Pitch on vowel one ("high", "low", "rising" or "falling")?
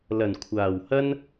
low